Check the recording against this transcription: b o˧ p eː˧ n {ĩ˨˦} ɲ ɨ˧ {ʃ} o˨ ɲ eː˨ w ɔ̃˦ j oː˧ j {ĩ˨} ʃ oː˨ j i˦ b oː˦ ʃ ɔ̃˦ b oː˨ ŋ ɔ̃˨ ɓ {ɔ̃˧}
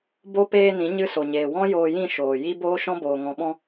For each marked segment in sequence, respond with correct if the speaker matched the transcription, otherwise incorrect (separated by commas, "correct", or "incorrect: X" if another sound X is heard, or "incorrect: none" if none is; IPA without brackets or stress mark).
correct, incorrect: s, incorrect: ĩ˦˨, correct